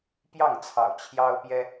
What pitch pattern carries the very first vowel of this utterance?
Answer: falling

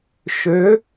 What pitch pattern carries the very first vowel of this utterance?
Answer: rising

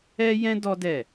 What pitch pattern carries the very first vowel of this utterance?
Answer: high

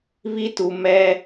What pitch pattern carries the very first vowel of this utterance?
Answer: high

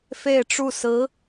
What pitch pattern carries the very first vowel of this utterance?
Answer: falling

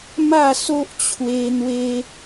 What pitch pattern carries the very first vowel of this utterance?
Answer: falling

